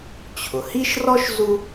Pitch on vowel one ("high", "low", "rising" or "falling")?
low